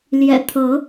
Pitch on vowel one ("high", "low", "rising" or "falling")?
low